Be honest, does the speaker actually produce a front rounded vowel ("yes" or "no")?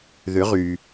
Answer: yes